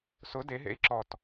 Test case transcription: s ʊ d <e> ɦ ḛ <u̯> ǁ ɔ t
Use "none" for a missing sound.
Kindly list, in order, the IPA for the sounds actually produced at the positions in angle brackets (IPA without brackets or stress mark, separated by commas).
e, i̯